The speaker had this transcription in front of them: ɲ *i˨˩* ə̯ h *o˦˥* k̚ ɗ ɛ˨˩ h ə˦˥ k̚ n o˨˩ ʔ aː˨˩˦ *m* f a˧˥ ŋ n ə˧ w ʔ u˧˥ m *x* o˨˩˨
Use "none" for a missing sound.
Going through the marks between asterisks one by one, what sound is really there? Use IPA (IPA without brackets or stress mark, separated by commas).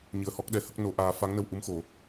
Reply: ɨ˨˩, ɔ˦˥, none, x